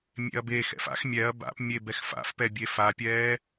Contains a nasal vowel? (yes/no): no